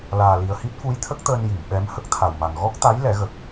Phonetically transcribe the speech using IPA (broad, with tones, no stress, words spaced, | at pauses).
laː˨˩li˨˩ə̯hi˦˥t̚ fu˧˥jt̪ʰə˦˥k̚t̪əː˧n ji˨˩˨mɓɛ˧˥m hə˦˥k̚t̪ʰa˨˩wma˨˩ŋ ɣɔ˦˥k̚t̪a˧˥j lɛ˨˩˦ɣə˨˩k̚